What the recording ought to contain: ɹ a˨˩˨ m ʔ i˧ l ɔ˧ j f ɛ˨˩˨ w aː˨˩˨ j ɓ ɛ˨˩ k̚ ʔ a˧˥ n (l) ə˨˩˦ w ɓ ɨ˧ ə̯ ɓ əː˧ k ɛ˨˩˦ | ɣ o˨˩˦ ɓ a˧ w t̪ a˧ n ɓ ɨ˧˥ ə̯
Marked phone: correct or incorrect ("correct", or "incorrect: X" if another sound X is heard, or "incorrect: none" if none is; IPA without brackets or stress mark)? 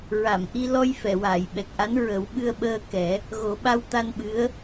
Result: incorrect: ɹ